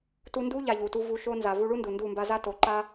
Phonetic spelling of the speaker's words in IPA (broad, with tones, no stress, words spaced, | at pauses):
tu˧ndu˦ ʎa˧ʎu˨tu˦ vu˧ʃo˦ nza˨vu˧ɭu˦ndu˨ ndu˦˨mba˦ za˦to˨˦ ǃa˦